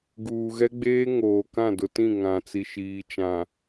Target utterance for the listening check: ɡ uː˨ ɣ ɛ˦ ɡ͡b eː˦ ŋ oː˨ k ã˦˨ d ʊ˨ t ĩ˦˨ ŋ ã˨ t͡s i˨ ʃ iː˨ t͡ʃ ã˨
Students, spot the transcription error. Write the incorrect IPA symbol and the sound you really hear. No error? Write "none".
none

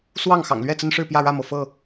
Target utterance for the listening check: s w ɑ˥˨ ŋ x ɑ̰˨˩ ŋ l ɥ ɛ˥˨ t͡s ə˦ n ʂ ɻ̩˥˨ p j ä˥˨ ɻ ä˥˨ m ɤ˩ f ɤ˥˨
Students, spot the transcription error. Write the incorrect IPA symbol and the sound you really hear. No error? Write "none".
none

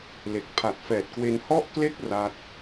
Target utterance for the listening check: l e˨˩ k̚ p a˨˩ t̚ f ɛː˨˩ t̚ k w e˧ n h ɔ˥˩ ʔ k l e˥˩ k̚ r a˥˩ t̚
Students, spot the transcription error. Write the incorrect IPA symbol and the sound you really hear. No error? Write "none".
p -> pʰ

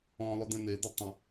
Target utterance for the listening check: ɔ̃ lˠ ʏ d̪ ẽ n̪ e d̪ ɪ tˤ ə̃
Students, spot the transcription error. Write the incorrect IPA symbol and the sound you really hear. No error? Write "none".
none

